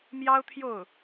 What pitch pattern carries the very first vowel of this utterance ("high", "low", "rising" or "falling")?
high